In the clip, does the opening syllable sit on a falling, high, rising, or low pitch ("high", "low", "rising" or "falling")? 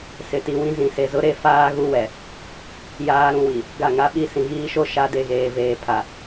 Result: low